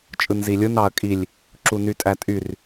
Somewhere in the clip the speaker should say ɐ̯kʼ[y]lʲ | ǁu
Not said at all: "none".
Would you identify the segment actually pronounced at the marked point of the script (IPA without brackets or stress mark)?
i